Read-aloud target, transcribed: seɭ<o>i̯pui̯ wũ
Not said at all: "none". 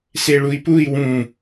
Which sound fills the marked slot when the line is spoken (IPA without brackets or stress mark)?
u